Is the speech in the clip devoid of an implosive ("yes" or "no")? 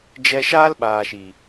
no